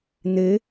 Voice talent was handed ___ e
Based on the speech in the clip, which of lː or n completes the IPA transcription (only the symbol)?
n